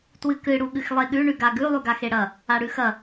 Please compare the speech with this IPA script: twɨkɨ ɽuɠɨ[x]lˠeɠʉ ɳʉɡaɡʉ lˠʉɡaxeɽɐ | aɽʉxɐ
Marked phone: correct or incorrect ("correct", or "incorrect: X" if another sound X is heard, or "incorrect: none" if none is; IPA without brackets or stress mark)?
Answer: correct